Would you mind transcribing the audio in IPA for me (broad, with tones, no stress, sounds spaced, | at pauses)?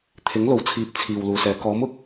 t̪ʰ ɪ˨˥ ŋ l o˨˥ w t͡sʰ iː˨˥ p̚ t͡sʰ iː˨ w l uː˨ s ɛː˨˧ k ɔː˨˥ m ʊ˨ k̚